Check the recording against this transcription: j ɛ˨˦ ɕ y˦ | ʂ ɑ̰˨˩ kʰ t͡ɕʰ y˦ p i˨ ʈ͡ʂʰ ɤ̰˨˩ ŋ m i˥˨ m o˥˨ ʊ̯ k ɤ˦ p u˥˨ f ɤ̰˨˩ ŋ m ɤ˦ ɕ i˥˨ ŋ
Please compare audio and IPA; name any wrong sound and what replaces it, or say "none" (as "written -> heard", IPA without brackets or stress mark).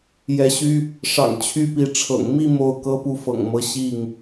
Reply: kʰ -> ŋ